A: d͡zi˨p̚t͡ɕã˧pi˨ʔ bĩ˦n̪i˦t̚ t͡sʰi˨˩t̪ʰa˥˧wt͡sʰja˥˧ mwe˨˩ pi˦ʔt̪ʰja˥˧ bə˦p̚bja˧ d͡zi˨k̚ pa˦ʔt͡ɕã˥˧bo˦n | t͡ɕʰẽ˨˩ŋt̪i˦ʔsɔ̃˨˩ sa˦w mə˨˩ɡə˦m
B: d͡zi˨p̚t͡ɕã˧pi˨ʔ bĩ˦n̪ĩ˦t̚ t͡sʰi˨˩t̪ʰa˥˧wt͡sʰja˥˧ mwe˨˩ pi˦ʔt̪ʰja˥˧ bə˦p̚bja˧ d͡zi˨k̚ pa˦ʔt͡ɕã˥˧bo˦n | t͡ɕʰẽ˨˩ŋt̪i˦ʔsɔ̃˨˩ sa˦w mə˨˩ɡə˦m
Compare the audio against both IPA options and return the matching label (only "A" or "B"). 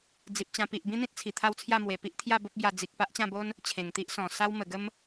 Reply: B